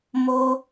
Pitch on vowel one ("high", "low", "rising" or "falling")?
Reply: high